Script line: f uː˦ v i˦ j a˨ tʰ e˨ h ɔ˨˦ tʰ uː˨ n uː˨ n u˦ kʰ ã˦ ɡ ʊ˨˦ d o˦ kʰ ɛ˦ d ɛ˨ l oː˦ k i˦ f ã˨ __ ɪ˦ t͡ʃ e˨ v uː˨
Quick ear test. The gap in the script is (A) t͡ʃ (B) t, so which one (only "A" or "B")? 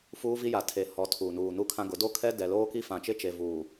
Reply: A